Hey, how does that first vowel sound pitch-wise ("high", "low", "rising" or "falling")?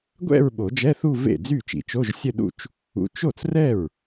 falling